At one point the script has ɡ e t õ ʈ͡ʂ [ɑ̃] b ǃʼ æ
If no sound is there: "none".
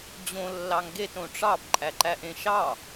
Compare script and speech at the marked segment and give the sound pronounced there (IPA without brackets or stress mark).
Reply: ɑ